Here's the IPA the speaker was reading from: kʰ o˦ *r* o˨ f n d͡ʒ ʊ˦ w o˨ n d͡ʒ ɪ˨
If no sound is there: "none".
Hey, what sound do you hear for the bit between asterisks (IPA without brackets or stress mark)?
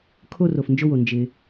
r